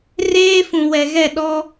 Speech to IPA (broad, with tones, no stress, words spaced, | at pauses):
reː˦ fũ˨wɛ˨ɣɛ˦˨ ɗɔ˦